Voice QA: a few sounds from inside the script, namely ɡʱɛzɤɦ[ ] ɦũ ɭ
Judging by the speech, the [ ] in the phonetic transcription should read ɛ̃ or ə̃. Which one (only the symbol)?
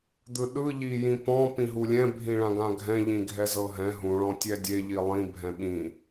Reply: ɛ̃